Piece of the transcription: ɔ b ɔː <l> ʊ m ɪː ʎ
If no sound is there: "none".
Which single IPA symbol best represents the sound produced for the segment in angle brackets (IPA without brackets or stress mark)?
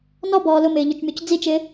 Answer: l